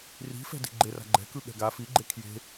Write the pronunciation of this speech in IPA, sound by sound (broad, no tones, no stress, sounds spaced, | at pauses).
r i̤ f ɛ̤ d i̤ ɡ͡ǃ e r a̤ ɡ͡ǃ ɛ̤ k ɯ ɠ ɛ̤ ɡ a f i ɡ͡ǃ e kʰ j e̤